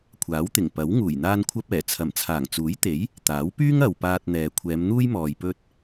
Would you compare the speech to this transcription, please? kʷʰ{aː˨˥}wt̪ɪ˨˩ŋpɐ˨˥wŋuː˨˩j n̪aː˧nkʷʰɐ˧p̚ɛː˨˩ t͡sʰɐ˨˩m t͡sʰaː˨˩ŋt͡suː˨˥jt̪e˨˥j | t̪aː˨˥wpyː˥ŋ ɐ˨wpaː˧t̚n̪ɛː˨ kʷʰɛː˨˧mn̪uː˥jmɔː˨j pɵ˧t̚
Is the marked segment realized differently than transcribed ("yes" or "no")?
no